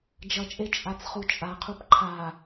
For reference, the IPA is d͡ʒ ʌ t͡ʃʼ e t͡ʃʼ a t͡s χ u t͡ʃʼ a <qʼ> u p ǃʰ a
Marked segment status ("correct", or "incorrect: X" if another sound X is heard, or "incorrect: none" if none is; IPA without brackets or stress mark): incorrect: qʰ